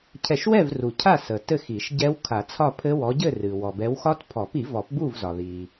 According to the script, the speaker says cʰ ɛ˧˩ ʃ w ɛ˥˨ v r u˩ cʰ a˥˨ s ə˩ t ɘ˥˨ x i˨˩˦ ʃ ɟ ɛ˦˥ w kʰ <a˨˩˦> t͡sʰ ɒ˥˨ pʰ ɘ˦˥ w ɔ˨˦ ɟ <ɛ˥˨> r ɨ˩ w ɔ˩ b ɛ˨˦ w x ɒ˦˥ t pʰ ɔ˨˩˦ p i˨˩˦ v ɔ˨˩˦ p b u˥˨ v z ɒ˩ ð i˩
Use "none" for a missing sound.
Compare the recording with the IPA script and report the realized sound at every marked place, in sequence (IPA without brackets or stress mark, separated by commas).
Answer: a˨˩˦, ɘ˥˨